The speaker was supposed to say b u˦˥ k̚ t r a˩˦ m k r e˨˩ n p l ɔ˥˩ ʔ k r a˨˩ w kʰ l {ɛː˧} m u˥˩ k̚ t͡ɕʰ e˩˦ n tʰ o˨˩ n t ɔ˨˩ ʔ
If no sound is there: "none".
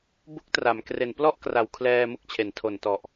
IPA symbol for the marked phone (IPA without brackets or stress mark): ɛː˧